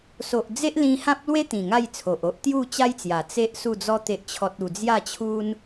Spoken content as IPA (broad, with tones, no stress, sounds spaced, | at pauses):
s o˨ ʔ d͡z e˦ ʔ l ĩ˧ h ã˦ p̚ l w e˦ t̪ ĩ˨˩ ŋ a˥˧ j t͡sʰ o˨ ʔ o˦ ʔ t̪ j u˥˧ t͡ɕ a˦ j t͡s j a˨˩ t͡s e˦ ʔ s u˥˧ d͡z ɔ˦ t̪ e˦ ʔ t͡ɕʰ ɔ˦ t̚ u˧ d͡z j a˥˧ t͡ɕʰ u˦ n